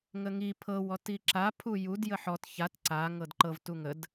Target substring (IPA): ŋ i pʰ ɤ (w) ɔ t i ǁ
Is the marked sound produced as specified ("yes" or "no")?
yes